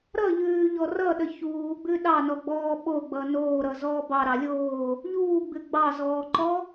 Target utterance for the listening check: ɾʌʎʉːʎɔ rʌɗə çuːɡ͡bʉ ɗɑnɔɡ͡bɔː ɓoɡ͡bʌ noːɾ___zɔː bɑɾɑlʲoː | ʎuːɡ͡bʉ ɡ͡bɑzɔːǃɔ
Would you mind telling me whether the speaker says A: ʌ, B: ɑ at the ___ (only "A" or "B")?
A